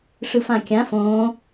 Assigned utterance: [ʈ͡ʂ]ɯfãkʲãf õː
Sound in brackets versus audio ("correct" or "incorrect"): incorrect